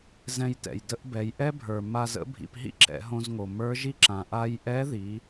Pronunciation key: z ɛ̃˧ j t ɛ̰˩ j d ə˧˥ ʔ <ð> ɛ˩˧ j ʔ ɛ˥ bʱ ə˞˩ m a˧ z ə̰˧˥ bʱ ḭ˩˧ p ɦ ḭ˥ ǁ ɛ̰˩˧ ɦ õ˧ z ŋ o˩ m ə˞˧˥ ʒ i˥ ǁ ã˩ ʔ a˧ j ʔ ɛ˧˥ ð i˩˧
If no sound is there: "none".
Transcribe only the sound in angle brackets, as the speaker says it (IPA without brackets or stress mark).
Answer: b